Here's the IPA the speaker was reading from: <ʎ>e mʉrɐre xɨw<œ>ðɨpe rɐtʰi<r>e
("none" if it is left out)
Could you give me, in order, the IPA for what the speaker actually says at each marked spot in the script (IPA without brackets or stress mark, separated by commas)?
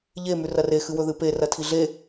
ʎ, ɵ, ɮ